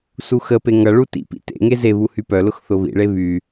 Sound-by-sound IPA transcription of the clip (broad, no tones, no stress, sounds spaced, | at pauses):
s u x ə p e ŋ ʌ ɭ u t ḭ p ḭ t ḛ ŋ e z e β u h y p œ l ʊ x θ ʊ β ḭ ɭ e β y